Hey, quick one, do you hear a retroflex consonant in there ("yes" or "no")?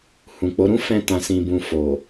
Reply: no